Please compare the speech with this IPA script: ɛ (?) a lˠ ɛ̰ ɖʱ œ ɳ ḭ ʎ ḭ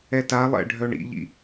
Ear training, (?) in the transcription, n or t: t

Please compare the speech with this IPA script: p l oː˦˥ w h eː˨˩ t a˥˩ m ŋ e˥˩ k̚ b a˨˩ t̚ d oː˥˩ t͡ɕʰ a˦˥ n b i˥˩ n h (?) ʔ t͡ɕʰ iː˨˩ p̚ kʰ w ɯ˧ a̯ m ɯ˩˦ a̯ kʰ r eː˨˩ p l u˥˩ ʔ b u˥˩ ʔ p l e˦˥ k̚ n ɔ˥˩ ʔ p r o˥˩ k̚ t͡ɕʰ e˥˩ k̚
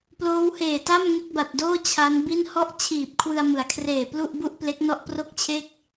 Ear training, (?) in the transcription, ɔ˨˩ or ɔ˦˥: ɔ˦˥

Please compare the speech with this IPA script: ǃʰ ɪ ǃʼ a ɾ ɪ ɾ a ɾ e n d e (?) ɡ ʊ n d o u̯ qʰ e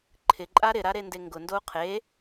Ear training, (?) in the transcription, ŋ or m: ŋ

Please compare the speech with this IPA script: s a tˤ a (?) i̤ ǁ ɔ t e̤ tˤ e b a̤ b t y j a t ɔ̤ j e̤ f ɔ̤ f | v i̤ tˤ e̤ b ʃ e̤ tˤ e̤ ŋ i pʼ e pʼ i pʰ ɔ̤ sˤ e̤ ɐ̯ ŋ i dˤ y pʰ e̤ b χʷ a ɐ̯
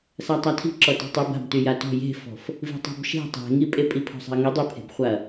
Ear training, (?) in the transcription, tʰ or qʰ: tʰ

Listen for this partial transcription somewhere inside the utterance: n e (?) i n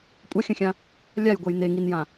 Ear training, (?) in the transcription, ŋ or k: ŋ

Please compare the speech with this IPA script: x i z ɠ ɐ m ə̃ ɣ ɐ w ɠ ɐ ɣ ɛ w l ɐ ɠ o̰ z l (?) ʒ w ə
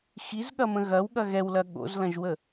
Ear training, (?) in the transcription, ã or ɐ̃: ɐ̃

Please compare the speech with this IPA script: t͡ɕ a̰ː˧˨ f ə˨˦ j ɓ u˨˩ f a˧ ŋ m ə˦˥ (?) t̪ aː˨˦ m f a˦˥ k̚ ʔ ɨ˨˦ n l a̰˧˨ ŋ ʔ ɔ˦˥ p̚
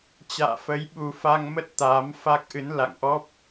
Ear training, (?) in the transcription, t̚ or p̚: t̚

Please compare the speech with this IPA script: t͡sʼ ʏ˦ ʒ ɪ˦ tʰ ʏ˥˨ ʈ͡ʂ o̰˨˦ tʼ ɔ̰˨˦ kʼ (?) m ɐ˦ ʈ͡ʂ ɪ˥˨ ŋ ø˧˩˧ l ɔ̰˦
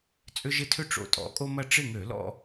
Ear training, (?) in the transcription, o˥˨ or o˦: o˦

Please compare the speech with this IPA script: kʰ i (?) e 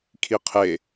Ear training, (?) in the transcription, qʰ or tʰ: qʰ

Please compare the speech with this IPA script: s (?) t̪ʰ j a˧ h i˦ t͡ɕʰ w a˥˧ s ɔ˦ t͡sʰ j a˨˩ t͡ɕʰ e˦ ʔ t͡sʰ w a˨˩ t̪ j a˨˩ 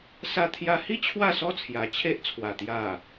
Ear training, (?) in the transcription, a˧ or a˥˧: a˧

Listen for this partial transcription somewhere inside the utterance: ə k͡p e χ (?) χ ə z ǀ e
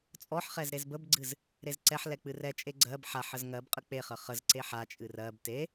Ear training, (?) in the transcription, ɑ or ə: ə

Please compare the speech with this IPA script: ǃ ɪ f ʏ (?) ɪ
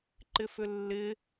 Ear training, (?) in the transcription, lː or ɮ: lː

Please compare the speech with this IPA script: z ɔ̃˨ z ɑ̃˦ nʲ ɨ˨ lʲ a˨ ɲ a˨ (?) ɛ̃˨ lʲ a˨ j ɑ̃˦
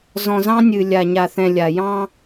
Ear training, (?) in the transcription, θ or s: θ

